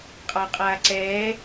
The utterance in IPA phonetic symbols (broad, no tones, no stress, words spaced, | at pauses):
qʼɑqʼaːǀɛː